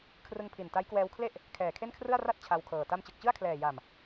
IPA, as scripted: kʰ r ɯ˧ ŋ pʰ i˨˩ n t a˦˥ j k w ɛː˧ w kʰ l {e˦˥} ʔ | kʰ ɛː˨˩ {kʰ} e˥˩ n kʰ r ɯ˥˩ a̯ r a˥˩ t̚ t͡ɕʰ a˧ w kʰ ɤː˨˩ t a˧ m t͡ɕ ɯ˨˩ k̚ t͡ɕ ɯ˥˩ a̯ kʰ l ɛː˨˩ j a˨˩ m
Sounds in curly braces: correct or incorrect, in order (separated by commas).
incorrect, correct